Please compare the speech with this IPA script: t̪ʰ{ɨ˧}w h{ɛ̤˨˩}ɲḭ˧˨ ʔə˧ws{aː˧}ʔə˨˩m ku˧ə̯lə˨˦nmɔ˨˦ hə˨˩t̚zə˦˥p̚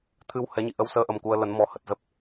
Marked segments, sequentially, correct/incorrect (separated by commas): correct, incorrect, incorrect